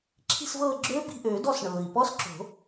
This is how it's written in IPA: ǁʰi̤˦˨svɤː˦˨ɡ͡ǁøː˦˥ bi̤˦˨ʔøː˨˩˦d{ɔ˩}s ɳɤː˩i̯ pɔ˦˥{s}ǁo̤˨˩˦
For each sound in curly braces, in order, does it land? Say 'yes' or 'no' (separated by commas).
no, yes